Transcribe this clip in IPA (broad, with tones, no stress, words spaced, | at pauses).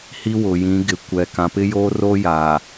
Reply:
hi˦wʊ˨jĩ˨˦ ɡɪ˨kʷɛ˨ kã˨pɪ˦joː˦roː˦ ja˨